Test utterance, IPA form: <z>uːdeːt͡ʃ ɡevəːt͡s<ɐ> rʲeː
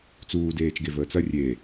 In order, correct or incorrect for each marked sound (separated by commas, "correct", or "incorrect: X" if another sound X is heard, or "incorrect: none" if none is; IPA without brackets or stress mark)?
incorrect: t͡s, correct